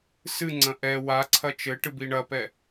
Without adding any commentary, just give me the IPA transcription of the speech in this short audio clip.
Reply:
sɨŋ͡ǀɐ̃ ʔɛ waǀʰɐ t͡ʃɘʈɨ biɳɐpɛ

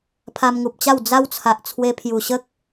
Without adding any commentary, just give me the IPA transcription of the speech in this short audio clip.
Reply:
pʰa˧mŋu˨p̚t͡ɕa˥˧w d͡za˦wt͡sʰa˨ʔ t͡sʰwe˧pʰju˨˩ɕə˦k̚

